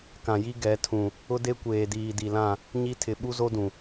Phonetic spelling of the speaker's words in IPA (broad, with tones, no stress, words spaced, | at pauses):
kã˨ji˦ ɡɛ˨˦tʰũ˨ | ʊ˦de˦kʷeː˨diː˨ di˨lã˦˨ | ɲi˦tʰɪ˨ ɓu˦zo˦dũ˨